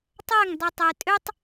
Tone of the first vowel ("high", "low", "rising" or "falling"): falling